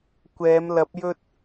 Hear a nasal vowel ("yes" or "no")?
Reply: no